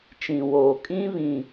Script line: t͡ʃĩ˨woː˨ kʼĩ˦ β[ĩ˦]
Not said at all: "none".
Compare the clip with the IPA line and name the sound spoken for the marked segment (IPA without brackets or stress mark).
ĩ˨